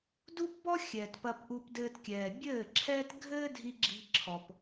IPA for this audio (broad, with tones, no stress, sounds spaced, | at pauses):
d u˦ p b ɔ˦ xʲ ɛː˨ t p ɐ˧ p ʔ u˧ p d ɘː˧ t kʲ ɛː˨ bʲ ɘː˦˨ ǁʰ ɛː˦ t ɡʱ ɘː˦ dʱ i˧ ɡ͡ǁ i̤˧ ǁʰ ɔ˨ p